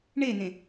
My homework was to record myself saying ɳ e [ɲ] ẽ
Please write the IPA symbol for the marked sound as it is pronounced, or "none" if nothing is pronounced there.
n̪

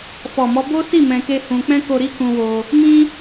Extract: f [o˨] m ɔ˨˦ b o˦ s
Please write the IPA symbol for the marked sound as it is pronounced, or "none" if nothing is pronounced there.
ɔ˨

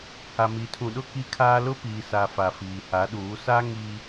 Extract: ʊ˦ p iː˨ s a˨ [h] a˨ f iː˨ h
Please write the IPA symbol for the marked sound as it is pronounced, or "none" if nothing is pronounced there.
f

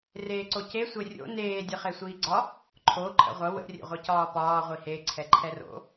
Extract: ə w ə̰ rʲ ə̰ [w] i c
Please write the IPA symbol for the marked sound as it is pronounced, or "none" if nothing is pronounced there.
ʁʷ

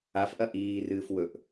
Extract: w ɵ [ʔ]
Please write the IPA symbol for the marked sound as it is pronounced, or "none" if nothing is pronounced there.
ʔ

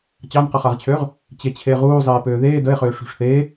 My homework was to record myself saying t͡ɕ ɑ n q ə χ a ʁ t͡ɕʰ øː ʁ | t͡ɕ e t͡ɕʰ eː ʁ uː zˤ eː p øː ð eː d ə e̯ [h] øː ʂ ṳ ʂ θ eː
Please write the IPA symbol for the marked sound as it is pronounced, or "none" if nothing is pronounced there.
χ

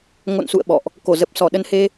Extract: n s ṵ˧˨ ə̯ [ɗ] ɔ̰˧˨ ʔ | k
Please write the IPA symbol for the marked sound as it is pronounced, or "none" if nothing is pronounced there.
ɓ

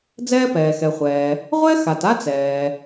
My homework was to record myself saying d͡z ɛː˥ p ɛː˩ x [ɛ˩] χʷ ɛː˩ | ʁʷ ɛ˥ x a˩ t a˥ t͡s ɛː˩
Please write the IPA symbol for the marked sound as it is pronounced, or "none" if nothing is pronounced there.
ɛ˩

